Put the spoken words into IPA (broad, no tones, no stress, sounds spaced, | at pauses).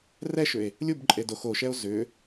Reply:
r ɛ ʃ ʏ e̯ | lʲ u b ǃʼ e d o x o ʃ ɛ o̯ z ʏ